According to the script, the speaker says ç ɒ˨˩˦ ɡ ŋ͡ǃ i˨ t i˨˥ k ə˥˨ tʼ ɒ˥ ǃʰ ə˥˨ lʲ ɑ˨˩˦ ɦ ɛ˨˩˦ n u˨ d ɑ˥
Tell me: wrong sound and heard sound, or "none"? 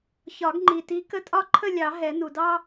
none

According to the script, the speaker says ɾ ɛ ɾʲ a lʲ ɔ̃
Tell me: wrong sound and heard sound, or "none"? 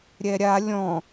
ɾ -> ɾʲ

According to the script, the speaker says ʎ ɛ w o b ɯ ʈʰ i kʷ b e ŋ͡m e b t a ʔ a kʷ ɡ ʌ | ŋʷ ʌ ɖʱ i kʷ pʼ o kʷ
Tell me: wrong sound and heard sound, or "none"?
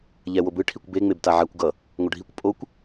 ʔ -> ʕ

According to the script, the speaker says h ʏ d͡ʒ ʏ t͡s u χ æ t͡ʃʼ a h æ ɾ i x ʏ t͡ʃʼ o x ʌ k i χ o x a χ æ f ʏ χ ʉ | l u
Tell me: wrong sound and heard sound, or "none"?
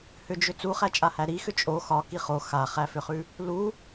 ʌ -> ɒ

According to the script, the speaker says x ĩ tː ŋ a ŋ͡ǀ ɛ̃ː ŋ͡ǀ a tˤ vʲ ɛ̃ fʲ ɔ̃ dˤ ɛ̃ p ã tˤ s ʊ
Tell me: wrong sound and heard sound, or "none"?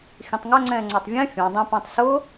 tː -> tˤ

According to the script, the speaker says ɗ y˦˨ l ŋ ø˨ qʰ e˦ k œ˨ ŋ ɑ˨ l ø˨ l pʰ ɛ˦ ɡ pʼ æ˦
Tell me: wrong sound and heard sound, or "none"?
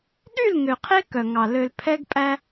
none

